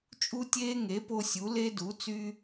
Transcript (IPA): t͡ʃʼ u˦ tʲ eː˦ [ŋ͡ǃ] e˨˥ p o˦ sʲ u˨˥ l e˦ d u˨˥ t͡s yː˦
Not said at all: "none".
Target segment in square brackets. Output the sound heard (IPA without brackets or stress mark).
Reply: ŋ